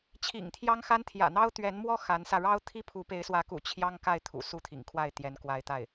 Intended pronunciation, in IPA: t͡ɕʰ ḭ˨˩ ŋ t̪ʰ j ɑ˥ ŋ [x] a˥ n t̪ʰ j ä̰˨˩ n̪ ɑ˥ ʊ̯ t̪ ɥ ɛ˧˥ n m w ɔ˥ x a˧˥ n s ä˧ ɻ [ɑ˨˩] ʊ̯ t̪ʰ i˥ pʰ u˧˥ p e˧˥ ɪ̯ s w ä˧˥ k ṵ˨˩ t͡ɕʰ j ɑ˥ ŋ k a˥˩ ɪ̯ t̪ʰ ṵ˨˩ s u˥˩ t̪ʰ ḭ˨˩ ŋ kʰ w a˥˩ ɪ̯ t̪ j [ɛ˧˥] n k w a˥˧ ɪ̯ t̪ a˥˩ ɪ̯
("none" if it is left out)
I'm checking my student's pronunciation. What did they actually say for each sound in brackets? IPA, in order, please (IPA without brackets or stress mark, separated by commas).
x, ɑ˥, ɛ˧˥